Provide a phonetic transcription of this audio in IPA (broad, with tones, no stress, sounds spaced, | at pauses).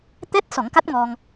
t̪ ɛ˦˥ t̚ s ɔ˨˩˦ ŋ k a˦˥ t̚ ŋ ɔ˧ ŋ